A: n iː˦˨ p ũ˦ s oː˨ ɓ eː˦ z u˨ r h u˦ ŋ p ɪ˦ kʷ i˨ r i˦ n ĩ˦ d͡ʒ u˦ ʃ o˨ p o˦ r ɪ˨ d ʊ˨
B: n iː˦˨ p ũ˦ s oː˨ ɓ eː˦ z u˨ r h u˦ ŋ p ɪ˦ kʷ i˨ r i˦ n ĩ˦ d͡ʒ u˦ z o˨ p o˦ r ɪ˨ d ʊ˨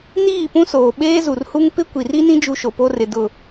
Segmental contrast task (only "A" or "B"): A